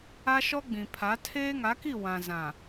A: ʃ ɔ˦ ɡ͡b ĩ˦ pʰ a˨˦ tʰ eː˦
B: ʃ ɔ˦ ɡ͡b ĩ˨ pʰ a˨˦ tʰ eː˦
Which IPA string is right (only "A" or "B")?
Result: B